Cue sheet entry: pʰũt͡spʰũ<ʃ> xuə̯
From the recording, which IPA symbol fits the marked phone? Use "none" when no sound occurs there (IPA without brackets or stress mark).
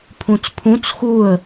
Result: t͡s